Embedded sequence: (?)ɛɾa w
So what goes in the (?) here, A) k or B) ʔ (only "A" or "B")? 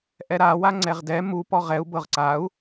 B